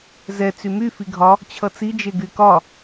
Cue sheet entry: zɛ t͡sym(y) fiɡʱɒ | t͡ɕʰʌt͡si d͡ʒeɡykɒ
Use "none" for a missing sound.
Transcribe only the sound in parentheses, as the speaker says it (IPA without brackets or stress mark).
y